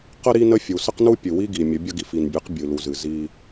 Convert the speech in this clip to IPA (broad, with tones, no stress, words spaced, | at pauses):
qə˦ ɾi˦ nə˦fʲu˨ sə˦qnu˦pʲɨ˨wi˦ ɡi˨mʲə˨˦ bʲə˦ɡi˨fi˨nbʲɨ˨˦q bʲɨ˨lu˨zɨ˨ zi˦